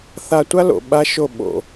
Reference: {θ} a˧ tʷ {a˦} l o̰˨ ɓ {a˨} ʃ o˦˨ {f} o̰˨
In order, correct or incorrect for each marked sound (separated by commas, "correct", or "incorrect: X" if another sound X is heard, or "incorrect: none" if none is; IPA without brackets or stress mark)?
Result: correct, correct, incorrect: a˦, incorrect: ɓ